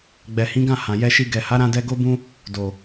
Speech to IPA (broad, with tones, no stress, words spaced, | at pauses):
ɡ͡bɛ˨hĩ˨˦ɡã˦˨ hã˨jɛ˧ʃi˧ ɡɛ˨ha˨˦ɾã˧dɛ˧ ɡo˦bũ˦ | do˨